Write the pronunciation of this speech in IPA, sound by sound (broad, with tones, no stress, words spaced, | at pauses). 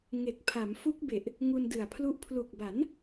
ŋe˨˩k̚pʰa˩˦m fu˦˥k̚be˨˩ʔ | ŋu˧ndɯ˨˩a̯pʰlu˦˥ʔ pʰlu˨˩k̚ba˩˦n